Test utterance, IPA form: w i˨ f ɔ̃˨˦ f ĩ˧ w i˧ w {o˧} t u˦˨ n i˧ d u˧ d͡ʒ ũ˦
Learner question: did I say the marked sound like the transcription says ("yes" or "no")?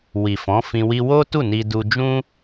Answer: no